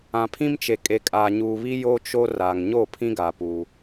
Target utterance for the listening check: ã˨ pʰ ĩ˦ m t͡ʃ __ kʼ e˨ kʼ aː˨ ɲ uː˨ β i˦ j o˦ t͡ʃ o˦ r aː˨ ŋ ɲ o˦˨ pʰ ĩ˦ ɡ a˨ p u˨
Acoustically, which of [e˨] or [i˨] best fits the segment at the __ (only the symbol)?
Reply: e˨